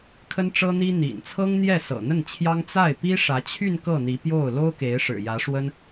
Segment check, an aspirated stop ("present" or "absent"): present